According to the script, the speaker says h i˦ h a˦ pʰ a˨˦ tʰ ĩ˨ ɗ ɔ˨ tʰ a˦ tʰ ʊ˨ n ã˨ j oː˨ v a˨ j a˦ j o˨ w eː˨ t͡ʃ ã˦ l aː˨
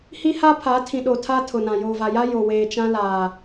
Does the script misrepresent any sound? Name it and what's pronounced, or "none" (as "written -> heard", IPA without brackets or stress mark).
ɔ˨ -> o˨